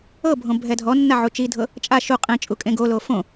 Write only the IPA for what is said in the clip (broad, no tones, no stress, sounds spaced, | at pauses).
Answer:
ɤ bʱ õ bʱ ɛ dʱ ɔ nː a ʕ u t͡ʃ i dʱ ɤ | t͡ʃʼ a ʃ u qʼ ẽ t͡ʃʼ u kʼ ẽ ɡ o l o f õ